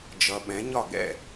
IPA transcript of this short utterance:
d͡ʒʌ˨ ɓɛ̃˨˦ɲɒ˦˨ ɡɛ̰˦˨

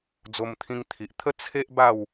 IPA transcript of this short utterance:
d͡zo˧mt̪ʰĩ˧ŋt̪ʰi˨ʔt̪ʰə˦ t͡sʰe˦ʔ ba˥˧w

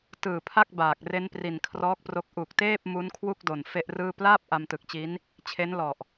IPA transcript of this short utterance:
tɯː˨˩pʰa˥˩k̚ baː˨˩k̚ re˦˥npri˨˩nkʰrɔː˦˥k̚pro˦˥k̚ ʔu˨˩k̚teː˥˩p̚ mu˦˥nkʰwu˥˩k̚do˨˩n fe˥˩ʔrɯː˥˩ plaː˥˩p̚ ʔa˧mtɯ˨˩k̚t͡ɕi˦˥n | t͡ɕʰe˦˥nlɔ˨˩ʔ

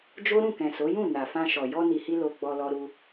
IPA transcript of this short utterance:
d͡ʒo˦ɾũ˦˨ kɛ̃˨so˨˦jũ˦˨ na˨fã˧ʃɔ˨ jɔ˧ni˨hi˧ lo˧ɡ͡bɔ˧lɔ˧ ɾu˧

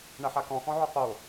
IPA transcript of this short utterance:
ɳɐħakɔ̃ xɔ̃ʕøqo

